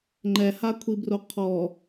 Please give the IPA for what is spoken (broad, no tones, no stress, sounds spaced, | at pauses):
ŋ͡ǃ ɛ h a kʷʰ i b r o qʰ ɔ